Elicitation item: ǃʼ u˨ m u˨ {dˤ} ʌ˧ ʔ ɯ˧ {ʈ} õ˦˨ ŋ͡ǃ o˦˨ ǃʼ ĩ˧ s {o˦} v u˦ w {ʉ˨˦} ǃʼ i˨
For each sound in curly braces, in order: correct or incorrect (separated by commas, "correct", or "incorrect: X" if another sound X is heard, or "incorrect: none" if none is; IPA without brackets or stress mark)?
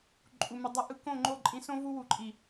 correct, incorrect: k, incorrect: õ˦, incorrect: u˨˦